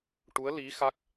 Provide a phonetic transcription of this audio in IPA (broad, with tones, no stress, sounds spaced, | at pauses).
ʈ u˧˥ ə̯ l i˧˥ x a˦˥ k̚